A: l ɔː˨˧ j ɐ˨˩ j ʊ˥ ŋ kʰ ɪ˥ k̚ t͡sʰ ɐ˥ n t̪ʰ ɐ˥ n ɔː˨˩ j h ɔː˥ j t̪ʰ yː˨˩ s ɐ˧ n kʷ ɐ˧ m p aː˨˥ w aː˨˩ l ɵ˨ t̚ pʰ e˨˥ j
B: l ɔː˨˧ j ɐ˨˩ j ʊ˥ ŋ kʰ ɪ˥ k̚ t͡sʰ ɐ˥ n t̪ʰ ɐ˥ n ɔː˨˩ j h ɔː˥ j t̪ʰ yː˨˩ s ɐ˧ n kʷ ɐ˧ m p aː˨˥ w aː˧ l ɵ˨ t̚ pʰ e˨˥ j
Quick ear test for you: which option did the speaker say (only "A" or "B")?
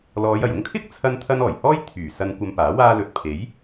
B